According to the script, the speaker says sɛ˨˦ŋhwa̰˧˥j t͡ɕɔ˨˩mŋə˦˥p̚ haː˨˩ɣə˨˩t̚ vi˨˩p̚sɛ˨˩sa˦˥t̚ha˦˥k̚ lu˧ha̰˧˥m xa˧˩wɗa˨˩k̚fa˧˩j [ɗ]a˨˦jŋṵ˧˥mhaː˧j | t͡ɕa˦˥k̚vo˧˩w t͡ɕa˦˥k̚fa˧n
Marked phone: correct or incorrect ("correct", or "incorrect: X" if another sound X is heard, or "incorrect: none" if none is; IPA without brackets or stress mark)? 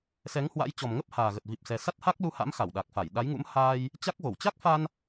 correct